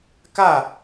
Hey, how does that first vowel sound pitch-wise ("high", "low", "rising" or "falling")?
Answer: falling